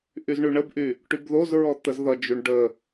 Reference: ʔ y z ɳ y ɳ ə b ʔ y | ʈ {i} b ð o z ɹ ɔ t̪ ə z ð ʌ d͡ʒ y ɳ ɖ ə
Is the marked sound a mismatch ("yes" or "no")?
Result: yes